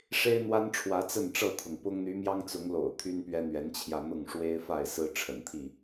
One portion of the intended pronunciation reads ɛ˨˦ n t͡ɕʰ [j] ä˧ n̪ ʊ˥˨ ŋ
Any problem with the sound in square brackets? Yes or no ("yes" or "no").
no